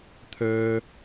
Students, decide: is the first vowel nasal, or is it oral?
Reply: oral